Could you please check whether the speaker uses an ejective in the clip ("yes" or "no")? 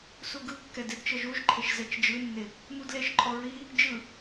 yes